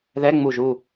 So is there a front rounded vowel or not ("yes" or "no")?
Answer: no